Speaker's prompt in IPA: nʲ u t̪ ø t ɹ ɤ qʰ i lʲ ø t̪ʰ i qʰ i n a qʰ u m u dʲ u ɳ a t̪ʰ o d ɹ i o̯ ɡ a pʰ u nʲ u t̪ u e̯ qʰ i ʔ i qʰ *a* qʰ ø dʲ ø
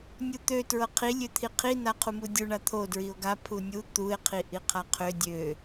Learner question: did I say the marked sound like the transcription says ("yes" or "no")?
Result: yes